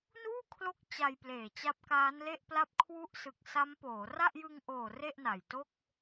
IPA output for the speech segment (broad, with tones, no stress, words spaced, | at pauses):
nuː˥˩kʰlo˦˥k̚ t͡ɕa˧jpleː˨˩ t͡ɕa˦˥p̚kaː˦˥nle˥˩ʔpla˥˩p̚ kʰwu˦˥ʔsɯ˨˩k̚ sa˦˥mpoː˩˦ra˥˩ʔ jɯ˧ŋʔoː˨˩ re˥˩ʔna˨˩jto˥˩k̚